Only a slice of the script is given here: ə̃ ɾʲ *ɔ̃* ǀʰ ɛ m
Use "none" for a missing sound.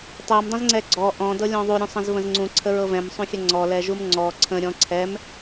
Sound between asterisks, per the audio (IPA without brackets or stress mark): ɔ̃